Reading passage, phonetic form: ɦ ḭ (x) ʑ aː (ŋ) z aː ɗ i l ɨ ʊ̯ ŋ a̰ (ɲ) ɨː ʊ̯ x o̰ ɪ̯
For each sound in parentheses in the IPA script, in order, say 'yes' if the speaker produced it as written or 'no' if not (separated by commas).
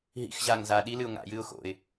yes, yes, no